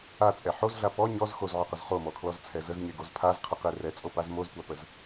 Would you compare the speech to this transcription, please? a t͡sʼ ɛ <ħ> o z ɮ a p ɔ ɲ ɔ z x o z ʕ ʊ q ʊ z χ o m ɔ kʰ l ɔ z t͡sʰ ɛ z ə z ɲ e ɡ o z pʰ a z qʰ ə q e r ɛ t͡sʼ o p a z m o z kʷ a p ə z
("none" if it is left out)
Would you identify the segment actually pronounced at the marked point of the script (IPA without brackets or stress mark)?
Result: ħ